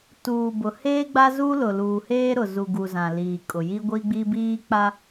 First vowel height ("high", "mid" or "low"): high